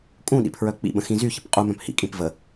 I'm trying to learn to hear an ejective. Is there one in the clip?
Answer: yes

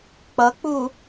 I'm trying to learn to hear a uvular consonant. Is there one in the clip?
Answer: no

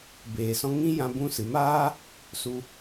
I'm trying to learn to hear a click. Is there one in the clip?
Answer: no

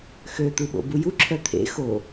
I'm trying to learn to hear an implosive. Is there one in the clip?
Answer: yes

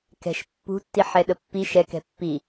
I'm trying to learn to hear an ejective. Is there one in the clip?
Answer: no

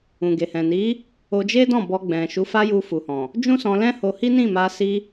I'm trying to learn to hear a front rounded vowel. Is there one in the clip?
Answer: no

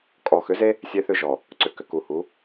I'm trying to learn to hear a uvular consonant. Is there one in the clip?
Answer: no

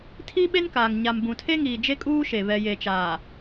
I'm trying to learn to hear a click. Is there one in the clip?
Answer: no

